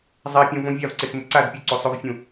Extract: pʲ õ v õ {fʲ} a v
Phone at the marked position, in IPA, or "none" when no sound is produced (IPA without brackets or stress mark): vʲ